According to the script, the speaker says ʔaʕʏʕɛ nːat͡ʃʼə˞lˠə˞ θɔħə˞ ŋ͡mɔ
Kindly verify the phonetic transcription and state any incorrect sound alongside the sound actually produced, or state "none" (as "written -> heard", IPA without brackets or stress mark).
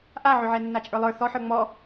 none